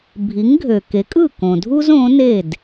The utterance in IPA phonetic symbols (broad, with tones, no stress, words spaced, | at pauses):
bʱi˩˥ŋɡʱø˩ ke˩˥kʼɯ˥˩kõ˩dʱu˥z õ˩˥ne˥˩d